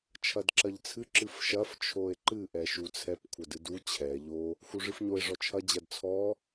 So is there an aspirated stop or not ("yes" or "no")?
yes